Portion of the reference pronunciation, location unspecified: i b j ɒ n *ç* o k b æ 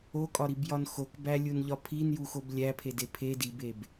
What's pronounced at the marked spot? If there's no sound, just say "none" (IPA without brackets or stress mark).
x